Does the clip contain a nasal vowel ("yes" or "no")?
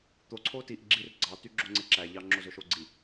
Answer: no